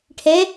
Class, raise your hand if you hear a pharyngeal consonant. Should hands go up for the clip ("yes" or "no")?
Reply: no